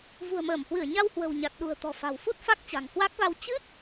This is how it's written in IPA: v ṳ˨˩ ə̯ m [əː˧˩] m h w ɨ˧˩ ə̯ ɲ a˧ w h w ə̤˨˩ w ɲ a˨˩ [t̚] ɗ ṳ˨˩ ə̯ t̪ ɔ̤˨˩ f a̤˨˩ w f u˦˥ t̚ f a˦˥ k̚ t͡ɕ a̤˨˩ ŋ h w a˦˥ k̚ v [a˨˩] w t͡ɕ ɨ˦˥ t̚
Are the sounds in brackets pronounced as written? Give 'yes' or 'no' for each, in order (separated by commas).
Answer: yes, yes, no